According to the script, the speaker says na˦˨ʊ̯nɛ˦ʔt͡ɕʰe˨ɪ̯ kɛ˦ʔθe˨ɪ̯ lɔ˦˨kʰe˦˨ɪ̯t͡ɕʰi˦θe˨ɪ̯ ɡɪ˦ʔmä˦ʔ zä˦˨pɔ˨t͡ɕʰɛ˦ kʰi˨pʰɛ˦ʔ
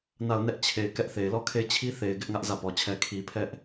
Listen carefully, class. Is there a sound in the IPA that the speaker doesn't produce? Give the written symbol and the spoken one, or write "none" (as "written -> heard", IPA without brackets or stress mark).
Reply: m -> ŋ